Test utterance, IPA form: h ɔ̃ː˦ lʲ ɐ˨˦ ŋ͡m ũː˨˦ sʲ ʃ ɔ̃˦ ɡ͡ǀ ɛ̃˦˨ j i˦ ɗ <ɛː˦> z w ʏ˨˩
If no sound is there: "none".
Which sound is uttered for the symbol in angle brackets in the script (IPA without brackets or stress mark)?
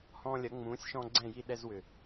ɛ˦